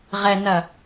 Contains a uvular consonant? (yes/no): yes